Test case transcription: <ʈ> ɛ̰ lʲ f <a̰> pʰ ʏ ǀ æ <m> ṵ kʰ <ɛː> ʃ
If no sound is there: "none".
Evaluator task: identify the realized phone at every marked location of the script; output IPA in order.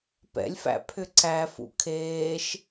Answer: p, æ̰, f, eː

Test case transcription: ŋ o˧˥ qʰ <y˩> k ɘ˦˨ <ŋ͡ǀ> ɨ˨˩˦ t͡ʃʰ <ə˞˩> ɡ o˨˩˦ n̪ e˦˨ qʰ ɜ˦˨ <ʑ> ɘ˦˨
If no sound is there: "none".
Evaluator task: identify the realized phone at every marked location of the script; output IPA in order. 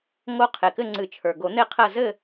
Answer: e˩, ŋ͡ǀ, ə˞˩, z

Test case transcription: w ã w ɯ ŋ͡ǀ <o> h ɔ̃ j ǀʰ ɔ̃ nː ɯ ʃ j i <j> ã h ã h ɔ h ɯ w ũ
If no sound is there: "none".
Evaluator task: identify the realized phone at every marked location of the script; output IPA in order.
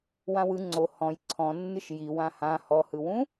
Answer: o, w

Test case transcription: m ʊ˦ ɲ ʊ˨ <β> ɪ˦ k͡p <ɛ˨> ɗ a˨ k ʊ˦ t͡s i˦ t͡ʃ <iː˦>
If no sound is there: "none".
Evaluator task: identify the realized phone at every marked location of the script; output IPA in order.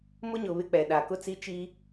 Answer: β, ɛ˨, iː˦

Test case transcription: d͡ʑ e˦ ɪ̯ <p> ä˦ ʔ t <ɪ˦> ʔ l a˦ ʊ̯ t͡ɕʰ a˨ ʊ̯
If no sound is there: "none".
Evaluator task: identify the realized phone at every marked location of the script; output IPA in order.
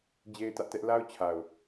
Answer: t, ɛ˦

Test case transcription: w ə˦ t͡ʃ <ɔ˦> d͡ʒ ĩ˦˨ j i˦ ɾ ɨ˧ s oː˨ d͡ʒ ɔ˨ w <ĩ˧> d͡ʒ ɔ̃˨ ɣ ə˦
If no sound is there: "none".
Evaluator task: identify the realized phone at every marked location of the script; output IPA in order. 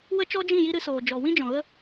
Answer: ɔ˦, ĩ˦

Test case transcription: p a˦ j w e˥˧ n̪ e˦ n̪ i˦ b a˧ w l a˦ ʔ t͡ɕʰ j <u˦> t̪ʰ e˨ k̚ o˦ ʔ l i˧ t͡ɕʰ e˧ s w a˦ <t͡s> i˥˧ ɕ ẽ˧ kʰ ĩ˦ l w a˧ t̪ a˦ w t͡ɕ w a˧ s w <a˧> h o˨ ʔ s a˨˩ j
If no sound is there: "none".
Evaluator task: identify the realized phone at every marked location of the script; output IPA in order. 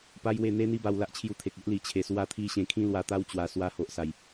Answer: u˧, t̪ʰ, a˧

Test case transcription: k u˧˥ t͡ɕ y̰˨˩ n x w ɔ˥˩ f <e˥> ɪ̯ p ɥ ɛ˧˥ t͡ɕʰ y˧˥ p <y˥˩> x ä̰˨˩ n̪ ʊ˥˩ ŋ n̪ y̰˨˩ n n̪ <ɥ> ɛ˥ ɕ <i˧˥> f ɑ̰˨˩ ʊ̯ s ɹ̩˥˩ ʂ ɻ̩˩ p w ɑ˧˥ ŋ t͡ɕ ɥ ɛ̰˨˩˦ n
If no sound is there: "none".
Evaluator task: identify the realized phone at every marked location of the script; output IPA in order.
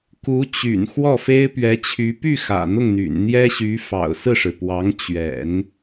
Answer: e˥, y˥˩, j, y˧˥

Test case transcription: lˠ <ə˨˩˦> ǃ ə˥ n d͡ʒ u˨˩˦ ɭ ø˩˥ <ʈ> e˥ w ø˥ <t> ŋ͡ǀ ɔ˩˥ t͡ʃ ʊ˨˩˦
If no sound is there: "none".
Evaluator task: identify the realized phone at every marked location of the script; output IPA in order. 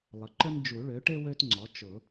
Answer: ə˩˥, ʈ, t

